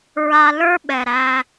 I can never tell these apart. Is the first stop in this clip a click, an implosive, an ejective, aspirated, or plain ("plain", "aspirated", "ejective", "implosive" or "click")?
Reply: implosive